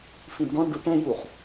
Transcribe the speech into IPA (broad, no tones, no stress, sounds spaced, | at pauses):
f ĩ d ɖ ɔ̃ ɳ ɖ u ʈ ɛ̃ j u χ